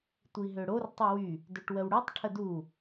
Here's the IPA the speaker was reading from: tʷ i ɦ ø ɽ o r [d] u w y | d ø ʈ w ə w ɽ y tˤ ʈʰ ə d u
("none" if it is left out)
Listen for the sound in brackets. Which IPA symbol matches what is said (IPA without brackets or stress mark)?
tˤ